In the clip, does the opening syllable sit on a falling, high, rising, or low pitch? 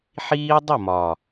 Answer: high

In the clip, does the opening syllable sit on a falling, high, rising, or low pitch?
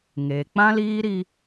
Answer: low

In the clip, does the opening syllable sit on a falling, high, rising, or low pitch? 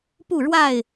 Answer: falling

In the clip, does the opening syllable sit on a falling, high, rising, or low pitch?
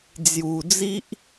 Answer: low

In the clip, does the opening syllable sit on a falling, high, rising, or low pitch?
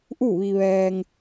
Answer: falling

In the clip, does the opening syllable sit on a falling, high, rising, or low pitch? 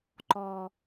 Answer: low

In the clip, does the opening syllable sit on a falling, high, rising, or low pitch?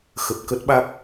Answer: low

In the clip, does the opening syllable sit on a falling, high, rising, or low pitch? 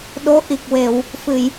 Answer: rising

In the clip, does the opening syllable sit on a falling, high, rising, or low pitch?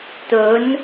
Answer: rising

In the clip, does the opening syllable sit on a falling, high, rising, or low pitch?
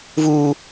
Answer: low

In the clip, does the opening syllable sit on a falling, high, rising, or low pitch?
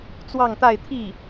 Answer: falling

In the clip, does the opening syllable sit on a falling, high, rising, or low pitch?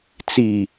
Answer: low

